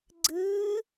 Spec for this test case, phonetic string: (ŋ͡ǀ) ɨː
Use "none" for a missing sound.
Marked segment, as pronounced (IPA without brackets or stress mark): ɡ͡ǀ